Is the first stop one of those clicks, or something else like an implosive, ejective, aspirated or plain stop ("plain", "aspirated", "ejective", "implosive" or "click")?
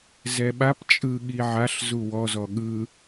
implosive